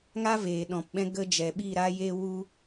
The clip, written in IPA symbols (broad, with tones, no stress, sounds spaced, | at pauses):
ŋ a˦ v eː˨ ɗ ɔ̃˨ p ɓ ɛ̃˧ ɡ ə˧ d͡ʒ ɛ˨ ɓ i˦˨ ɾ a˧ j e˧ w u˧